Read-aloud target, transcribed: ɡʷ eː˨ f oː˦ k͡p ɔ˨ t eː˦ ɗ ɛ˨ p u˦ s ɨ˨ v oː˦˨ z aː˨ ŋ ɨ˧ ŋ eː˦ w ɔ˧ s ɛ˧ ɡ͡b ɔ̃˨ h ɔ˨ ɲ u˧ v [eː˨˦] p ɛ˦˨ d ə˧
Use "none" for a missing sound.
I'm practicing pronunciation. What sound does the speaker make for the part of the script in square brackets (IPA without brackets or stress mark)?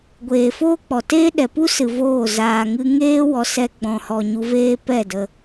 eː˦